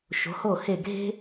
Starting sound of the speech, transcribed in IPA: ʃ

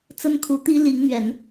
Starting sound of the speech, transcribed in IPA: t͡s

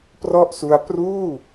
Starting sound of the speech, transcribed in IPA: p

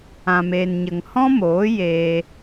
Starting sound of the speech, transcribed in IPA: ã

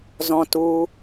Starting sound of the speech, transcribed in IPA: z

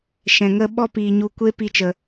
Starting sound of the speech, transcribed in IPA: ʃ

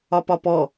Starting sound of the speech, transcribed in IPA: ɒ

